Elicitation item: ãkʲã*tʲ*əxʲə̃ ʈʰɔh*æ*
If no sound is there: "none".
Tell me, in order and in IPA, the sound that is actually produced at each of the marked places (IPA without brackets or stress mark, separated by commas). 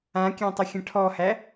tˤ, æ